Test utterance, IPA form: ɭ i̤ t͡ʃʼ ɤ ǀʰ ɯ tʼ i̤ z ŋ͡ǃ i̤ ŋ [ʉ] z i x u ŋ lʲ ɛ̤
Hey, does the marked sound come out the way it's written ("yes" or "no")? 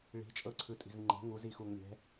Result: no